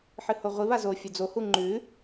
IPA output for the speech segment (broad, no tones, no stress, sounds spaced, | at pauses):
ħ ɨ h o ʁʷ i β a z o fʲ o d͡z o h u ŋ͡ǃ ʉ